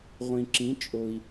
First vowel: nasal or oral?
nasal